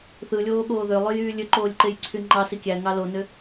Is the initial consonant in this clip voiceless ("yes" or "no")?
yes